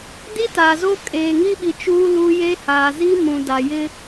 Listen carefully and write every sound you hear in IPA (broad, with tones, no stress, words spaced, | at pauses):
di˦taː˨zo˦ kʼeː˨ŋi˦ɓi˨ t͡ʃuː˦lu˦ jeː˦haː˨ zi˦mũ˨ da˨jɪ˦